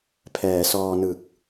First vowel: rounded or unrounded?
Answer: unrounded